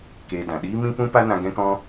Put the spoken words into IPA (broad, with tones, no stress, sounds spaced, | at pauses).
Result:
k eː˧ d ã˨ ɗ iː˦ m ĩ˦ p ũ˦ p a˦ n ã˧ ɡ ɛ̃˦ k ɔ̃˦